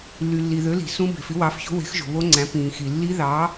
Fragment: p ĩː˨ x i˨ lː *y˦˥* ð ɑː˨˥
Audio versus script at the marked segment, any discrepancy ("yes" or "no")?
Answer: yes